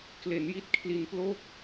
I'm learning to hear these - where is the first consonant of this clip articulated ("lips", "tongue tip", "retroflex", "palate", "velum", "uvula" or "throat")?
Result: velum